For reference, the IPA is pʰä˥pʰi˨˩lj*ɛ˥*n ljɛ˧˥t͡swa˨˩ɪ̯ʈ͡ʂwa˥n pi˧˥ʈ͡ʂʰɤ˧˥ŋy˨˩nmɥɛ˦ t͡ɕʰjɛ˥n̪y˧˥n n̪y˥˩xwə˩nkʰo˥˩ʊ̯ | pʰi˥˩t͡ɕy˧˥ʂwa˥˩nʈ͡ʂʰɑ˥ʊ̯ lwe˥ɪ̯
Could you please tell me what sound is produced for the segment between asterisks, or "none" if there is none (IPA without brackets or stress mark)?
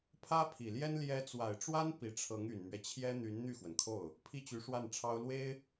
ɛ˥